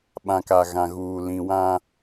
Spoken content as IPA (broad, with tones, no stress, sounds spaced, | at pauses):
ɓ ã˨ k a˨ ɣ ã˨ ɣ uː˨ l ĩ˨ w ã˦